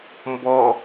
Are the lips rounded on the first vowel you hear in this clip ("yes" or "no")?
yes